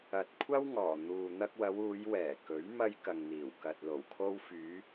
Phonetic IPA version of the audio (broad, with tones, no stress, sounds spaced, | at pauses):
ɐ˨ t̚ kʷʰ ɐ˥ w ŋ ɔː˨˩ n̪ uː˨ n̪ ɐ˧ k̚ w ɐ˨˧ w uː˨˧ j w ɛː˨˩ k ɵ˨˥ ɥ m ɐ˧ j k ɐ˨ ŋ n̪ iː˨˩ w k ɐ˨ t̚ l o˨˩ w kʰ o˧ w f yː˨˧